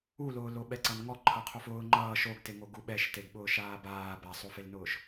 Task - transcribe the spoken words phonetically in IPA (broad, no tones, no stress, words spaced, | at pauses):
ulʊː loɓɛǀʌnŋɔ ǃʰʌqʰofʊː ŋ͡ǃʌː ʃoɡteŋo ɡuɓɛʃteɡ ɓʊːʃaːbaː basˤofelnʊːʃ